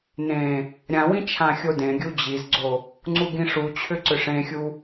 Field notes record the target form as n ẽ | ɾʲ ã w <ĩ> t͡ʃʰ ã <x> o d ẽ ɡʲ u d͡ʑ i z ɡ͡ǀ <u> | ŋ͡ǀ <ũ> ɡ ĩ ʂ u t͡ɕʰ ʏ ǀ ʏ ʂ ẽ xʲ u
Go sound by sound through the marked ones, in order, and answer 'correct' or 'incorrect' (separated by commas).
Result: correct, incorrect, incorrect, incorrect